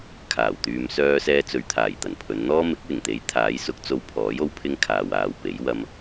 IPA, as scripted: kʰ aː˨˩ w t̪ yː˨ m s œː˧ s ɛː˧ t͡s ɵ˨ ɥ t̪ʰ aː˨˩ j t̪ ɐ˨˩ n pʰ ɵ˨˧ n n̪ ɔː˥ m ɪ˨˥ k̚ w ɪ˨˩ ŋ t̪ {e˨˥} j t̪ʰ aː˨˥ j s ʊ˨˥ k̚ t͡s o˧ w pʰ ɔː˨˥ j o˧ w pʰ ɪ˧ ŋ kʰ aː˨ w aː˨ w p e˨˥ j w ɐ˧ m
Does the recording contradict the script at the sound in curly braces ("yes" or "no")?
no